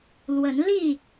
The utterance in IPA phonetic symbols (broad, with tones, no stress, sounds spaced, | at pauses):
l w ə˨˦ n l i˥˨